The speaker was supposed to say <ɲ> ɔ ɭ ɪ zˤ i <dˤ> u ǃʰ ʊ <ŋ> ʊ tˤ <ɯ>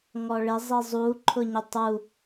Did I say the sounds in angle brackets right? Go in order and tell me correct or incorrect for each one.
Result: incorrect: ŋ, incorrect: zˤ, incorrect: ɲ, incorrect: u

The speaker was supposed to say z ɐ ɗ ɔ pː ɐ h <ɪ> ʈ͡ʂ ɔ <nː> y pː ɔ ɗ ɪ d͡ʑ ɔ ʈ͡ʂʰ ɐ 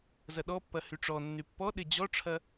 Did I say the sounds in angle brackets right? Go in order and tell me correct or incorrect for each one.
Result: incorrect: y, correct

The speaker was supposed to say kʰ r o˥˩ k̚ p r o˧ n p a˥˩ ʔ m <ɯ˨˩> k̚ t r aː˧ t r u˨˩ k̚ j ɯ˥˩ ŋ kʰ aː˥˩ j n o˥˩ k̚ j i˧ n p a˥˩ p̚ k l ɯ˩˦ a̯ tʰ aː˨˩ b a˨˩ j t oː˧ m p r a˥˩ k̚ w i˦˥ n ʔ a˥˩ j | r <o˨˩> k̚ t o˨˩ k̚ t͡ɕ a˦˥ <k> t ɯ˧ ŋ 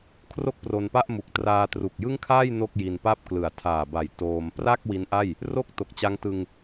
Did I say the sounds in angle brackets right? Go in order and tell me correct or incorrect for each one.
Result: incorrect: u˨˩, incorrect: o˥˩, incorrect: ŋ

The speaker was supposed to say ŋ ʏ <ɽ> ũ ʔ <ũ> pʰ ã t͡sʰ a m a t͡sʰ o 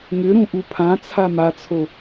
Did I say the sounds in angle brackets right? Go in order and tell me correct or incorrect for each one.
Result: incorrect: ɾ, incorrect: u

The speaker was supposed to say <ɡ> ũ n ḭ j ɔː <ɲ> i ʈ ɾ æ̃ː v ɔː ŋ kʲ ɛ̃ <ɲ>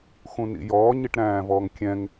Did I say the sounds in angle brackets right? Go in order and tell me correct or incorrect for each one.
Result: incorrect: x, correct, incorrect: ŋ

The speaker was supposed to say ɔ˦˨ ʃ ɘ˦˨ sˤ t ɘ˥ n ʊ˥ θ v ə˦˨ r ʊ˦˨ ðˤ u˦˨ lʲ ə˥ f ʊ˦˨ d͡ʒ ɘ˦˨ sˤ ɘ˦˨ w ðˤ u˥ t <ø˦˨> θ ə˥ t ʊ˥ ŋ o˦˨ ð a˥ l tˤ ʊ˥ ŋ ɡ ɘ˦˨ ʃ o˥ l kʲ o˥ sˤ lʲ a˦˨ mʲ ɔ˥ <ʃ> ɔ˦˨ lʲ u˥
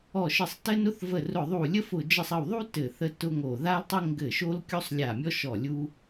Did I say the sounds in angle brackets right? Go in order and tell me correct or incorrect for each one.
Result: incorrect: ɘ˦˨, correct

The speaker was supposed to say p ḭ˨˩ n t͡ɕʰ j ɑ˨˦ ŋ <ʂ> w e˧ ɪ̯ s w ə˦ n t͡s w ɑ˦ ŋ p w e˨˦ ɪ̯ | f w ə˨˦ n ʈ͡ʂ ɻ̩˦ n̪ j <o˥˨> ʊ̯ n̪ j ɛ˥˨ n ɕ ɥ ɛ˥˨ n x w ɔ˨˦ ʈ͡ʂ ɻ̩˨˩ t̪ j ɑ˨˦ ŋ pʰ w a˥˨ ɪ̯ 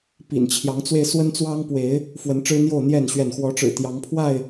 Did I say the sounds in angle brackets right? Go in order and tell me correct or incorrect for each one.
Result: incorrect: t͡s, correct

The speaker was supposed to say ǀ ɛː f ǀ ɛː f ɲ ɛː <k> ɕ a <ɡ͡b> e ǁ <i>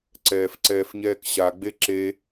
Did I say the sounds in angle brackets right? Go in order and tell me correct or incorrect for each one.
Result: correct, correct, incorrect: e

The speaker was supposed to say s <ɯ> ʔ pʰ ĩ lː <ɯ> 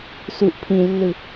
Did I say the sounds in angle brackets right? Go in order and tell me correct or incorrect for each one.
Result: incorrect: u, correct

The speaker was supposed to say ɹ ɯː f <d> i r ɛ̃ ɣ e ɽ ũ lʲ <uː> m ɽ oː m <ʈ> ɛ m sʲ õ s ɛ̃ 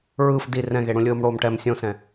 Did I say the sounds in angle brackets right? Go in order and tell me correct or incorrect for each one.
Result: correct, incorrect: ɯː, correct

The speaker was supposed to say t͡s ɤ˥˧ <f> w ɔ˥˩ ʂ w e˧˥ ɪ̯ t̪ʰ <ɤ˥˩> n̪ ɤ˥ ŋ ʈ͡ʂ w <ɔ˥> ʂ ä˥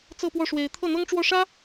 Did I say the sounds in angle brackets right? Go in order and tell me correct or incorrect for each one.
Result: incorrect: p, correct, incorrect: ɔ˥˩

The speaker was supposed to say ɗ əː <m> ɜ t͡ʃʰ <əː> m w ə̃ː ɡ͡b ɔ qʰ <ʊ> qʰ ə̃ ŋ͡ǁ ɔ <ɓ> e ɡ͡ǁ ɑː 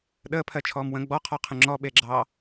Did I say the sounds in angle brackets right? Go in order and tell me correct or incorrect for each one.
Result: incorrect: pʰ, incorrect: ɔː, incorrect: ɔ, correct

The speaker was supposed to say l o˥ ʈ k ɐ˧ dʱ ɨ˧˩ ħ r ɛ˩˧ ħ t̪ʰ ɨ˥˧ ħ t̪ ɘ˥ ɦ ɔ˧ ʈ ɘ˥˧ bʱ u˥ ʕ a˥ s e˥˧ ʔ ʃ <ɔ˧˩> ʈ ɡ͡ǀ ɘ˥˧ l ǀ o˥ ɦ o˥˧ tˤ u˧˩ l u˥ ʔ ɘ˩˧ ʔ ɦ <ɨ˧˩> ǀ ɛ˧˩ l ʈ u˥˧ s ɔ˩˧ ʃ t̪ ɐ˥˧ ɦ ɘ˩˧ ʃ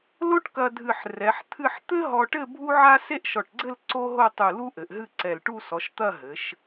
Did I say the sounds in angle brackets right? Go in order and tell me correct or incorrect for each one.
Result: correct, incorrect: ɨ˥˧

